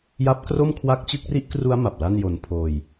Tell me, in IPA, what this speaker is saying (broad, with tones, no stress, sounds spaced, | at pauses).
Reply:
j a˦˥ p̚ k r o˥˩ m kʰ w a˦˥ k̚ t͡ɕ ɯ˥˩ k̚ r i˥˩ ʔ k r u˦˥ a̯ m a˨˩ p̚ l a˥˩ n j o˧ n pʰ oː˧ j